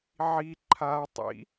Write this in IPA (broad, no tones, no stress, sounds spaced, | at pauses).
ʕ i ǃʰ a tˤ ḭ